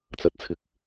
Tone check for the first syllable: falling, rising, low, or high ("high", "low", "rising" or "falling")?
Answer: high